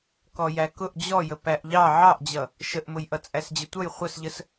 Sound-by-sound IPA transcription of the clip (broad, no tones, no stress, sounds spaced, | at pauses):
k ɔ j æ k ʊ ʔ d͡ʑ ɔ j ə p æ ʔ ʎ ɑ ʕ ɑ ʔ d͡ʑ ʌ | ʃ ə ʔ m ʊ j ʔ ʌ t͡sʼ æ s d͡ʑ ə tʷ ʌ j χʷ ə s ʎ ə s